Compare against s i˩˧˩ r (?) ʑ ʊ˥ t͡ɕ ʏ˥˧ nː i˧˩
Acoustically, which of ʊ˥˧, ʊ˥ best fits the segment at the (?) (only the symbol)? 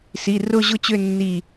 ʊ˥˧